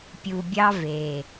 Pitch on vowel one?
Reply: low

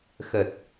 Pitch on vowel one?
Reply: low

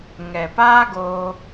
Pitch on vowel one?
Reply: low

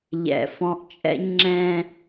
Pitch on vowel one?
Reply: low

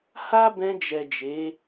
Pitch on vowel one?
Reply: high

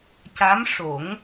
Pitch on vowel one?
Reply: rising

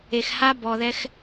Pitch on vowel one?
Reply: low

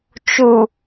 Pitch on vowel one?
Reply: low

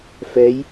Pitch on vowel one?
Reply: rising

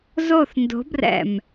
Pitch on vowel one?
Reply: falling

